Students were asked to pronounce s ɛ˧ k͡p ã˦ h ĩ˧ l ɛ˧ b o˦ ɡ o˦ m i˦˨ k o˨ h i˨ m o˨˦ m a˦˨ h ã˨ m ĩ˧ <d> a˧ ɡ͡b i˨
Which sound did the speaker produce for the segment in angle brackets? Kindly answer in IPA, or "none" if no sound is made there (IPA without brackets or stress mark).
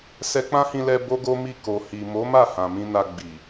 n